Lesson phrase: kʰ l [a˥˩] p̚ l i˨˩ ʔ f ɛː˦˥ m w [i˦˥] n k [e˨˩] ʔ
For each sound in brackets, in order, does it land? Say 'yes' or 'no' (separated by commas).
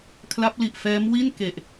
no, no, yes